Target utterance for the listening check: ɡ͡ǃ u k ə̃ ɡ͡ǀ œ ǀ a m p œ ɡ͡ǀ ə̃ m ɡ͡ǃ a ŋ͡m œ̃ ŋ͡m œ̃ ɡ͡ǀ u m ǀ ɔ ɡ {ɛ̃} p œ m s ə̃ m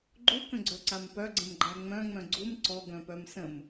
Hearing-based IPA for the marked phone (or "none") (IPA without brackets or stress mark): œ̃